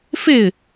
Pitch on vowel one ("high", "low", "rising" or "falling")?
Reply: falling